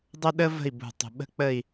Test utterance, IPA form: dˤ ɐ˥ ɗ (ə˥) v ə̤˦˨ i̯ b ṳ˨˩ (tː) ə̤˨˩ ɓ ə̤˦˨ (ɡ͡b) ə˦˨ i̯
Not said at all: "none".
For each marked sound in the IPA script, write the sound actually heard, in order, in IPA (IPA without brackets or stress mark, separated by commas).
ə˥, tˤ, k͡p